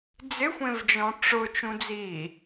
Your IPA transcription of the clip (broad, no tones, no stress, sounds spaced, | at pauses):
d͡z ɪ xʷ ẽ v d͡ʒ ɔ̃ ʈ͡ʂ ʊ t͡ʃ ũ d͡z i